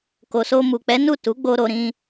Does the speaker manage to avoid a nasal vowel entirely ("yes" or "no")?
no